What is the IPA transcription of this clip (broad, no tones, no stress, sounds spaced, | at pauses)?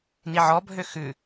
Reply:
n i ʕ ɔ bʱ ø x ʉ